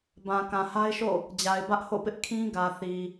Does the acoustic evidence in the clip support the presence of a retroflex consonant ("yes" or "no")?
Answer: no